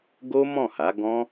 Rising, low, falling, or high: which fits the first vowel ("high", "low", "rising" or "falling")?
high